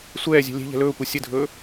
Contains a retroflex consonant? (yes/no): no